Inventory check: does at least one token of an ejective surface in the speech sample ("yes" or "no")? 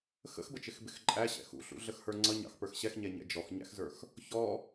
yes